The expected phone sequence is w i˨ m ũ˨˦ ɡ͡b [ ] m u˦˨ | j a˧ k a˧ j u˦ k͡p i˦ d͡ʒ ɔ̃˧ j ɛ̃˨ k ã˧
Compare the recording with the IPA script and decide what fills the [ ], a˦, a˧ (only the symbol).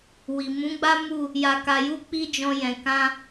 a˦